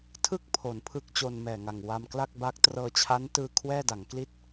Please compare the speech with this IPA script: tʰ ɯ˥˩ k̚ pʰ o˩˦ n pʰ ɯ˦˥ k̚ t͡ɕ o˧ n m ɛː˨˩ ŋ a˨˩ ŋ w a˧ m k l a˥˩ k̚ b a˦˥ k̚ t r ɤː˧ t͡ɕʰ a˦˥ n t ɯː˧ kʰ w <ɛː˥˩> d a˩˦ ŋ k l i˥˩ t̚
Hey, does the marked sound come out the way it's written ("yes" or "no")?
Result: yes